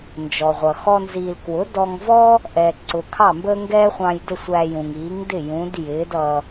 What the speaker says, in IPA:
n d͡ʒ ɔ˩ ʁʷ ʌ˩ x ɔ˥ n z iː˧ l k w ʊ˩˥ d ɔ˧ ŋ v ɔ˥ | ʔ ɛ˩ ǀ ʊ˩ kʰ ɑ˥˩ m b əː˥ ŋ ɡ ɛː˥ χʷ ɑ̃˧ j d ə˥˩ sʷ æ˧ j ũ˩ ŋ iː˩˥ ŋ d ɪ˥˩ j ũ˩˥ d j ɪː˩˥ d ʌ˧

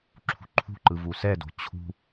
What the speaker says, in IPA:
ǁʰ ṳ ǃʰ ṳ ǃ ɯ v u s ɛ d o̤ t͡ɕʰ ṳ

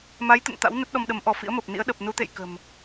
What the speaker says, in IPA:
m a˨˦ j t̪ ə̰˧˨ n t̪ a̰˧˥ w n ə˦˥ t̚ ɗ ɔ˧ m ɗ ə˨˦ m ʔ ɔ˧˩ f ḭ˧˥ ə̯ m ə˨˩ p̚ n ḭ˧˥ ə̯ ɗ ə˨˩ p̚ n u˨˦ t̪ ḛ˧˨ j k ə̤˨˩ m

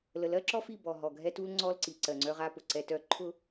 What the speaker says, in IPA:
l ə˨ l ɜ˦ ǁ ɔ˦ f i˦˨ b ɔ˨ ɦ ɔ˨ ɡʱ ɛ˦ t u˦ l ŋ͡ǀ ɔ˦ l ǀ i˨ ǀ ɜ˨ ŋ͡ǀ œ˦ ʁ a˦ p ʊ˨ ǀ ɛ˦ t œ˦ ǃʰ ʊ˦

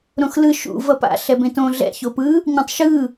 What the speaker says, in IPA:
ɾ õ x l ɯ ʃ ṵ v ʌ p a̰ ɬ ɛ b ẽ t õ ɮ ɛ̰ ç o p ɯ | ɲ ẽ tˤ ʃ ɯ

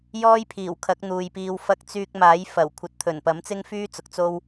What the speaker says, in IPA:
j ɔː˥ j pʰ iː˨˩ w kʰ ɐ˨˥ k̚ n̪ uː˨ j p iː˧ w f ɐ˧ k̚ t͡s yː˧ k̚ m aː˨˥ j f ɐ˨˩ w kʷʰ ɐ˨ t̚ t̪ʰ ɵ˨˩ n p ɐ˨˥ m t͡s ɪ˥ ŋ f yː˥ t͡s ʊ˨ k̚ t͡s o˥ w

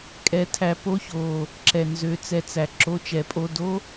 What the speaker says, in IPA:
kʼ ɛ˨˦ tʰ æ˨˦ p o˧˥˧ ç oː˨ | ǁ ɛ˨ n z ø˨˦ t͡s ɛ˨˦ t͡s æ˨ ǁ o˧˥˧ t͡ʃ ɛ˨˦ pʼ o˧˥˧ d o˥

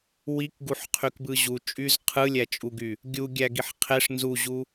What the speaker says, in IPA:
w i k ɡ u ħ qʰ y k b ɯ ʑ u t͡ʃʼ y z qʰ ɯ lʲ æ t͡ʃʼ u ɡ y | ɡʲ u ɡʲ æ ɡ i ħ qʰ e ʂ n z u ʑ u

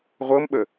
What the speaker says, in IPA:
ʁʷ ɤ m ɓ ə

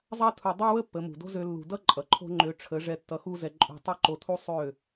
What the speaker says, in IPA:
zˤ a˧ tʰ u˨ dˤ o˦ w ə˦ pː ə˨˦ m ṳ˨ d o̤˦ z ø˧ lː ṳ˨ d ʌ˦ ǃʼ ʌ˨ ǃʰ o̤˦ ŋ͡ǃ ø˧ ʈ͡ʂʰ ə˨˦ ʐ ɛ˧ tː ʌ˧ x u˦ z ɛ˧ ǃʼ ṳ˧ tˤ ø˦ ǃ o˧ tʰ u˦ sˤ ø˦˨

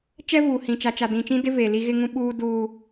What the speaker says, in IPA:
t͡ʃ ɛ˦ v uː˨ h ĩ˨ t͡ʃ a˨ t͡ʃ a˨ d ĩ˨ t͡ʃ ĩ˦ d ɪ˦ v e˨ l i˦ ɣ ɪ˦ ŋ ũ˦ ɓ uː˦ d uː˦

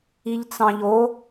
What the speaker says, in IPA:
i ʎ t͡s ɑ̃ ʎ o

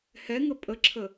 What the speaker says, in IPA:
h ɛ ŋ ə pʼ ə ǁʰ ə

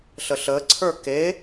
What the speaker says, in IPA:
ɬ ə ɬ əː ǀʰ ə˞ k e

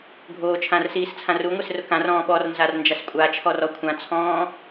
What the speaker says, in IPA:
ɡʱ oː t͡ʃʰ ã r s iː s t͡sʰ ã r u ŋʷ e s r ʊ k ã r ɔ̃ː ɓ ɔ r n z a r n d͡ʒ a s kʷʼ a t͡ʃʰ ɔ r ɔ kʷʰ ã t͡sʰ ɔ̃ː

